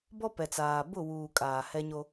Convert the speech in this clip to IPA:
b ɔ˦ p ɛ˨ t͡s aː˨ b ʊ˦˨ w uː˨ kʼ aː˨ h ɛ˦ ɲ o˦

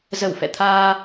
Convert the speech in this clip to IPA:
z ə˧˩ w f ɛ̰˧˨ t̪ʰ aː˧

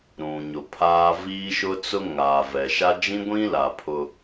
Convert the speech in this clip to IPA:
ɾ ũ˨ ɲ ʊ˨ pʰ aː˦ v iː˦ ʃ ʊ˦ t͡s ʊ˦ ŋ aː˨ v ɛ˨ ʃ a˦ d͡ʒ ĩ˦ ɡʷ ĩ˦ l a˨ pʰ ʊ˦

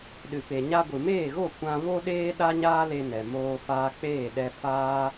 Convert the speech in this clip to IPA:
ɗ ɨ˨ p e˨ ɲ a˧ ɡʷ ɨ˨ m eː˦˨ ɣ o˦˨ kʷ ã˧ v o˦ ɗ eː˦ ɗ a˦ ɲ aː˦ l e˧ n ɛ˨ m oː˧ f aː˧ k͡p eː˦˨ ɗ ɛ˧ f aː˦

